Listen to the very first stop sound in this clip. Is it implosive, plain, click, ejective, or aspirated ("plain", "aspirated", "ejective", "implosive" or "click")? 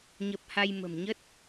plain